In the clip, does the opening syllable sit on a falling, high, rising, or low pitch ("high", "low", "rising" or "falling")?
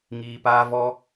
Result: low